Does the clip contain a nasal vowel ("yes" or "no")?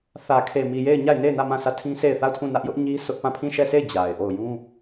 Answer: yes